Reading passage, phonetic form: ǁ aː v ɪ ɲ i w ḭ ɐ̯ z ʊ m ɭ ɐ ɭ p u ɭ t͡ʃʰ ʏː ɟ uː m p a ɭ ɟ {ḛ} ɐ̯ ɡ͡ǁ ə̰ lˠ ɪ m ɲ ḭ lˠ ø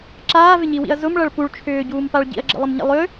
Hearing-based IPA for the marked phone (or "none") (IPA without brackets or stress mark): ḭ